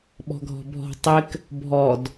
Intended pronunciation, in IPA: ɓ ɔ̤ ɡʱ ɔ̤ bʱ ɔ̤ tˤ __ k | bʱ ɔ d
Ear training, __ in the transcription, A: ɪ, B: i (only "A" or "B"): A